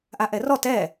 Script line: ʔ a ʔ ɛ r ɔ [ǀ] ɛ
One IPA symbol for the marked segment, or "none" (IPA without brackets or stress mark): t